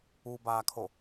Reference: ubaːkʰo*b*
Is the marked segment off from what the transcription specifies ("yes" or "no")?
yes